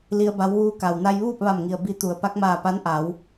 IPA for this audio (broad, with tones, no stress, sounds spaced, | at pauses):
l i˧ ə̯ b a˧˥ w ʋ uː˧˥ k a˩ w n a˧ j ʋ uː˥˨ p̚ ʋ a˧˩ m ŋ i˩ ə̯ b i˧˥ t̪ u˩˧ ə̯ p a˧˥ k̚ m aː˧˩ p a˧˥ n ʔ a˩˧ w